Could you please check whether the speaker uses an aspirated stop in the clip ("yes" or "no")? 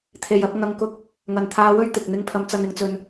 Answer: yes